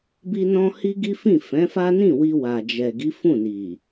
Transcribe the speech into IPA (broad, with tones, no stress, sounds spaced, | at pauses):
b i˧ n ɔ̃˧ h i˦ ɡ i˦ f ĩ˦˨ f ɛ̃˨˦ f a˦ n ĩ˦˨ w i˧ w a˨ d͡ʒ ɛ˨ ɡ i˨˦ f ũ˦˨ n i˨